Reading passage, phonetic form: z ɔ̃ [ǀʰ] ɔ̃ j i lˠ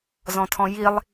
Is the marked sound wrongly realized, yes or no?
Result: yes